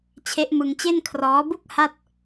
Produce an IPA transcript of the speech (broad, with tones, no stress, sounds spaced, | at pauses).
t͡ɕʰ e˦˥ ʔ m ɯ˧ ŋ t͡ɕ e˥˩ n kʰ r ɔː˦˥ b u˥˩ k̚ h a˥˩ t̚